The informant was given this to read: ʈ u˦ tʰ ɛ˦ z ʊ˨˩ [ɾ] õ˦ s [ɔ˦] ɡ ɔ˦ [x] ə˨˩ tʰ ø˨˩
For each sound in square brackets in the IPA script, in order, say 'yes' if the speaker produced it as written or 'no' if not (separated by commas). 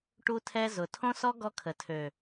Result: no, yes, no